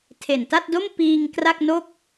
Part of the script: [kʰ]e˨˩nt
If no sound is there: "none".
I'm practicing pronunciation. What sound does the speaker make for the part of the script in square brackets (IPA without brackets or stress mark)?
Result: tʰ